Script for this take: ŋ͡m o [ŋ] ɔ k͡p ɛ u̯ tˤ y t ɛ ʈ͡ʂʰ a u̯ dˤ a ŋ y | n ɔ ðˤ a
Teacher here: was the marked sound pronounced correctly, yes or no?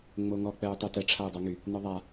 yes